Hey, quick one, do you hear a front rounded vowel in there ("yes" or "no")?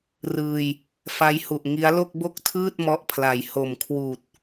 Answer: no